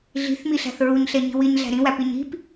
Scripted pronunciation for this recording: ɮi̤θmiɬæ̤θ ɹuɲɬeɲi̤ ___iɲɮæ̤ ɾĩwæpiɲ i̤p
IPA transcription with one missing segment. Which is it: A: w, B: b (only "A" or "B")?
A